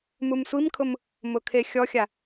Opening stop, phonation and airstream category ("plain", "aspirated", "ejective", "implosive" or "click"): aspirated